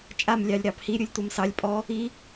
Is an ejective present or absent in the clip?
present